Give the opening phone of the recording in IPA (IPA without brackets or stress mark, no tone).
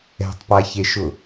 ɛ̤